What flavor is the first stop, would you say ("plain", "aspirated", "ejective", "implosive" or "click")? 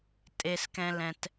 ejective